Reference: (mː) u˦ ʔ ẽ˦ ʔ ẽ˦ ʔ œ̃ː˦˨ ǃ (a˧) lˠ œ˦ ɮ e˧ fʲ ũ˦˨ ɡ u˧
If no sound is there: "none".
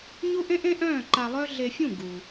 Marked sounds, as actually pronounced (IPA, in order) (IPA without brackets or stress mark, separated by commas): ɲ, a˧